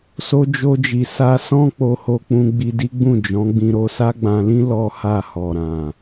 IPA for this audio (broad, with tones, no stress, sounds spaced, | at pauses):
s o˧ d͡ʒ o˧ d͡ʒ i˨ s a˧ s ɔ̃˦ k͡p o˧ h o˧ k͡p ũ˧ ɡ͡b i˧ d i˦ ɡ͡b ũ˦˨ d͡ʒ ɔ̃˨˦ ɡ͡b ĩ˧ ɾ o˧ s a˦ ɡ͡b ã˧ l ĩ˦ l ɔ˦ h a˦˨ h ɔ˨ ɾ ã˨